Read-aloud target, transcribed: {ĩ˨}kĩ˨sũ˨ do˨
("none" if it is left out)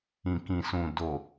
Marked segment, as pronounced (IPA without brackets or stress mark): ĩ˨